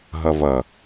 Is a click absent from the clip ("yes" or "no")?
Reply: yes